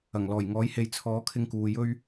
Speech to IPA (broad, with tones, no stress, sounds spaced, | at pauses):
ɐ˨˩ ŋ l ɔː˨˩ j ŋ ɔː˨˥ j h e˨ j t͡sʰ ɔː˨˥ kʰ ɪ˧ ŋ k uː˨ j ɵ˧ ɥ